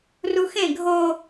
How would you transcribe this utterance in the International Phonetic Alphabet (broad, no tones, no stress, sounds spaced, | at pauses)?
r u x ẽ ɡʱ o